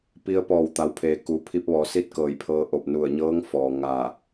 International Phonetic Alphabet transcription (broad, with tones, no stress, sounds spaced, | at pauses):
p i˧ ə̯ p ɔː˧˩ w t̪ a˩˧ w pʰ eː˩ k u˩˧ pʰ i˧ p̚ ʋ ɔː˩˧ s i˥˨ t̚ k ɤː˧˩ j pʰ ɤː˧ ʔ o˧˩ p̚ n u˧˩ ə̯ ɲ ɤː˧˥ ŋ f ɔː˩ ŋ a˧˩